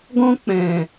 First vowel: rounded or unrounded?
rounded